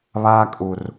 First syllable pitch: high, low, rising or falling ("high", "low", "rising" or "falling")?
high